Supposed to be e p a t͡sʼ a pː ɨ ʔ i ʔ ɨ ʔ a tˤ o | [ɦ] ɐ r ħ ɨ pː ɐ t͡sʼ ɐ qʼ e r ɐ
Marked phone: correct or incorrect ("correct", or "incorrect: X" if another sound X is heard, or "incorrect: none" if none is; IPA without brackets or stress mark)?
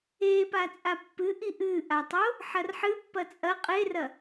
incorrect: ħ